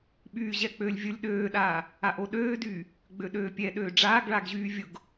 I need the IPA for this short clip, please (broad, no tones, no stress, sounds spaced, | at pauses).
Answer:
ɓ yː ʑ ɛ k͡p øː lʲ vʲ ʊ lʲ ɗ øː ɗ aː | a ʔ o ɗ øː d yː | ɡ͡b ø ɗ øː pʲ ɛ ɗ øː ɖ͡ʐ aː ɡ ɭ a ɡ ʑ yː vʲ ʊ ɡ